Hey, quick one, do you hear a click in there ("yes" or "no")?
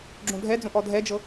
yes